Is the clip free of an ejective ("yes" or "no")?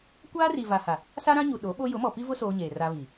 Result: yes